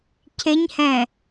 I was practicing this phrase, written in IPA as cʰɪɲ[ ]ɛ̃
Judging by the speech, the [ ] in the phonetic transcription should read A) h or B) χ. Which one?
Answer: A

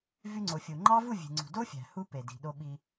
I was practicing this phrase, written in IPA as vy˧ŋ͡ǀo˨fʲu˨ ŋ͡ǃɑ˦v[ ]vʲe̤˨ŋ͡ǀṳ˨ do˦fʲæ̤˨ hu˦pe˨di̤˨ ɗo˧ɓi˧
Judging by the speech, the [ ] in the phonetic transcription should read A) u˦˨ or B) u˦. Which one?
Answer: A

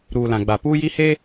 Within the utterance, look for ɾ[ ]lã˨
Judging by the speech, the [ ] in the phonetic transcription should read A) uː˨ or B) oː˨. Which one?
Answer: A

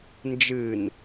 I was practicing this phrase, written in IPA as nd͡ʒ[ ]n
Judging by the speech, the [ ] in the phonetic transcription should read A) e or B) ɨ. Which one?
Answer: B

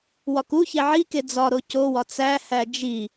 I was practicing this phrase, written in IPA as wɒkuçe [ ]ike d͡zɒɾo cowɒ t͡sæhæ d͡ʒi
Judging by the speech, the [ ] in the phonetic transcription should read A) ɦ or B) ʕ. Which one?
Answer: B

